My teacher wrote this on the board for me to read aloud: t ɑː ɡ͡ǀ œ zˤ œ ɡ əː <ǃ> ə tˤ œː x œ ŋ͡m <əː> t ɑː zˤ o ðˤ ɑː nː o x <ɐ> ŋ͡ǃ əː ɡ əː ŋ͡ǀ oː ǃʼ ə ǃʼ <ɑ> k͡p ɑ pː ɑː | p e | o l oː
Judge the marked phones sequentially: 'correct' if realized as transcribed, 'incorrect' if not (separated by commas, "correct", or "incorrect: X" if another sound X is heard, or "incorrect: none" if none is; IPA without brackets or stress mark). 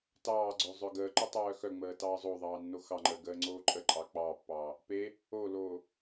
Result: correct, correct, incorrect: ɑ, correct